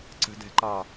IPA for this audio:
ǀ ə̤ d ɛ̤ ǃ ɑ

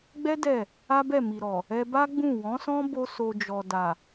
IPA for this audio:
ɡ͡b ɛ˦ d ɛ˦˨ | a˦ b ɛ˦˨ m i˨ ɾ ɔ˨ | ɛ˧ b a˦ ɡ͡b ũ˦˨ w ɔ̃˨˦ s ɔ̃˦ b o˦ s o˧ d͡ʒ ɔ˨ d a˨

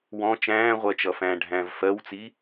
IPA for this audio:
w ɔ̃ t͡ʃ æ̃ː ʁʷ ɜ t͡ʃ ʌ f æ̃ː ɖʱ æ̃ː v f ɜ w t͡s i

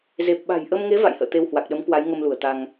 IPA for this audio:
z e˨˩ p̚ ɓ a̤˨˩ j ʔ ə˧ m ŋ e˨˦ v a̰˧˨ j h ə̰ː˧˨ t̪ e˧ w h w a˨˩ k̚ ɗ ə˨˦ m k w a˨˦ j ŋ ə˧ m l u˧˩ ə̯ t̪ a˧ ŋ

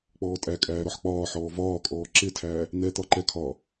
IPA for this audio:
k͡p ɔː tʼ æ kʼ æː ɾ ɔ ħ k͡p ɒː ħ ɔː v ɒː kʼ ɔː ǁ ɪ tʰ æː | n̪ ɛ t̪ ɒ ǃ ɛ kʰ ɒː

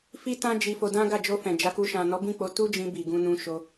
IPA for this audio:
f i˦ t ã˦ d͡ʒ i˧ f o˧ d ã˦ ɡ a˦˨ d͡ʒ o˧ f ɛ̃˨ d͡ʒ a˨˦ k u˧ ʃ ã˨ n ɔ˨˦ b ĩ˦˨ k͡p o˨˦ t u˦ d͡ʒ ĩ˧ b i˨ ɡ ũ˧ n ũ˧ ʃ o˧

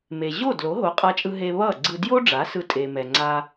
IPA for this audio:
m e˩ ʑ o˥˩ d l o˩˥ ɦ o˩˥ qʼ a˧ t͡ʃʼ ɯ˧ ɦ e˧ β ʌ˥˩ ɡ͡ǀ ɯ˧ d j o˥ ɖ͡ʐ a˩˥ s ɯ˧ tʼ e˩ m ɛ˩ ŋ͡ǀ a˧

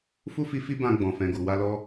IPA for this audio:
f u˦ f i˧ f i˧ b ã˧ ɡ͡b ɔ̃˨ f ɛ̃˨ ɡ u˨ w a˧ l ɔ˦

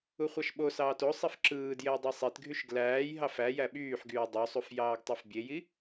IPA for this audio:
u χʷ ɑ ʃ ɓ o s ɑː t o sˤ i f ǁ ɯː d j e j dˤ i sˤ i t ɡʱ y ʃ ɡ l æː j ɦ ɑ f æ j æ ɓ yː ħ ɡ yː dˤ o sˤ u f j ɑː ɡ tˤ e f bʲ e j i

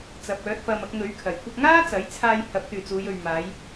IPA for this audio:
t͡s ɐ˨˥ p̚ œː˨˥ t̚ p ɐ˧ m ɐ˧ k̚ ŋ ɵ˨˥ ɥ kʰ ɐ˨˩ j kʷ ɐ˧ k̚ ŋ aː˥ t͡s ɐ˨˥ j t͡sʰ aː˧ j h ɐ˨˥ p̚ t̪ yː˨ t͡s uː˨˧ j ɵ˨ ɥ m aː˨˧ j

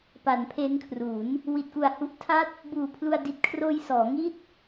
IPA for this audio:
p a˩˦ n pʰ e˦˥ n kʰ r u˩˦ n | w i˨˩ t̚ k u˨˩ a̯ h u˦˥ ʔ tʰ a˦˥ t̚ | b uː˨˩ pʰ l u˧ a̯ d i˨˩ t̚ kʰ r oː˧ j s ɔː˩˦ ŋ i˥˩ t̚

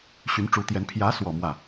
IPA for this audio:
ɕ y˧˥ n ʈ͡ʂ u˧˥ t̪ j ɛ˧˥ n pʰ j ä˧˥ s w ɔ˨˩ m w ä˥˩

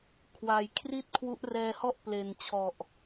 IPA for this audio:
kʰ w a˩˦ j kʰ r i˥˩ t̚ kʰ w u˦˥ ʔ r ɛː˧ h ɔ˥˩ ʔ p l e˨˩ n t͡ɕʰ ɔ˨˩ ʔ

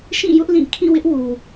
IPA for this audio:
ʃ ĩ˦˨ j ʊ˦ ʔ l ĩ˦˨ kʰ ĩ˦˨ w ɪ˦ ʔ w u˨

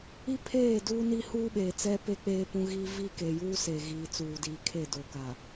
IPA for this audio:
i˦ pʰ eː˦˨ d uː˦ n i˦ h uː˦ ɓ eː˨ t͡s ɛ˦ p e˦ k͡p eː˦ p ũ˦ ɣ iː˦ v i˦ k e˨ j uː˦ s e˨ ɣ iː˨ t͡s uː˨ d iː˨ kʰ e˦˨ d o˨ k a˨

